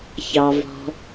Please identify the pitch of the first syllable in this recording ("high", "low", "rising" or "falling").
low